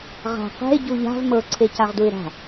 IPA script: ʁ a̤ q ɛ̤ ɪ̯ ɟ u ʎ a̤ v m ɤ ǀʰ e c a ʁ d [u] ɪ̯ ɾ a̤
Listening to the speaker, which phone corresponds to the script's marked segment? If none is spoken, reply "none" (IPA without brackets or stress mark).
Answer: u